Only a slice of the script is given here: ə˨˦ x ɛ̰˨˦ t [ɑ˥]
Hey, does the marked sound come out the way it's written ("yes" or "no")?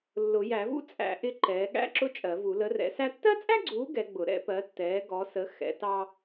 yes